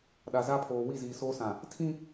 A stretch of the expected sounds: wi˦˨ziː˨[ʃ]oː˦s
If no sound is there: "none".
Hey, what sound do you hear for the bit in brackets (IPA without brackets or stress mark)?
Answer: s